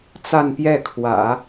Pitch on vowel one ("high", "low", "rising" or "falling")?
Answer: falling